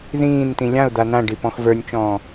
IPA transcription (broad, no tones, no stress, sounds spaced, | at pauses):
ð ĩː n t ĩ lʲ ã ʊ̯ d̪ a n ã ɖ i p ɔ̃ x v ə˞ nʲ t͡ʃ ɔ̃ː